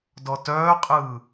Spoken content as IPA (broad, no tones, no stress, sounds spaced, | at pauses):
d ɔ t œː qʼ ɯː